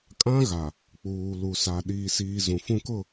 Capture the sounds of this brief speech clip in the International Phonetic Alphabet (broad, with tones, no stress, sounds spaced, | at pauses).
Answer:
kʼ ã˦ ɣ a˨ | k͡p uː˨ l u˨ s a˨ ɗ iː˨ s iː˨ z ũ˨ f ũ˦ k ʊ˦˨